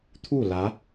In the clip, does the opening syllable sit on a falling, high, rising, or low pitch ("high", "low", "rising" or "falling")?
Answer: falling